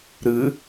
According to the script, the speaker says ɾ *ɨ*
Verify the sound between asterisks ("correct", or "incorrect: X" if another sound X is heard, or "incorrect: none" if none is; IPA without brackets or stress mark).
correct